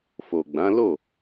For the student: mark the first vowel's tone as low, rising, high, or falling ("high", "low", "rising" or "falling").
low